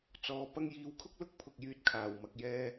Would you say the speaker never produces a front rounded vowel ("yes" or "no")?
no